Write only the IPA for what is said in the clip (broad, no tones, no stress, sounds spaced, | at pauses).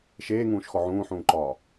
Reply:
ʃ eː ŋ ũː ʃ x ɔ ʕ ũː ħ ũː ǃ ɒː